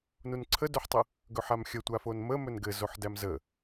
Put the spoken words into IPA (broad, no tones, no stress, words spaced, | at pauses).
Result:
nunǀʰədɵħtˤə | ɡɵħamxʲə tʷafonmə mɵnɡɘ zoħdæmzə